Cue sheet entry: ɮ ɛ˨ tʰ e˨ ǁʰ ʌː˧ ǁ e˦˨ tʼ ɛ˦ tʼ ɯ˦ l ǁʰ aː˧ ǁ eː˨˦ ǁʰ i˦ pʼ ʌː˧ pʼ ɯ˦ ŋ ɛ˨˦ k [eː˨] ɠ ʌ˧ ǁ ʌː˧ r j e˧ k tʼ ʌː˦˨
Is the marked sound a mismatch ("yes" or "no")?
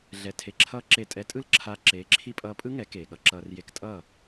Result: no